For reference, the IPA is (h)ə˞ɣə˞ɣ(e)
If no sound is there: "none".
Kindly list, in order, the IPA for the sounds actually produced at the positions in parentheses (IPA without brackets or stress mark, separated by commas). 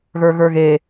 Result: ɣ, e